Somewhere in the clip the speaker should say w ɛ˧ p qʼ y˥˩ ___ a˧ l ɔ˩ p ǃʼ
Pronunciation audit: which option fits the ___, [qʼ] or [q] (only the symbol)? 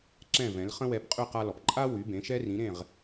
q